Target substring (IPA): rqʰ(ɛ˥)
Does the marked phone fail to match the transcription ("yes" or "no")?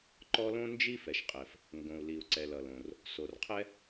no